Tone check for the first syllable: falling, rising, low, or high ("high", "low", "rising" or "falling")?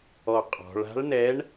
low